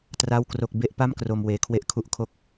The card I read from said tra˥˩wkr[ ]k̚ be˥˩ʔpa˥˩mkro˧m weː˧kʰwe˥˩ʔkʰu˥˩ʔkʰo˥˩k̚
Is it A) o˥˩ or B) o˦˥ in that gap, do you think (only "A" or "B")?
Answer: A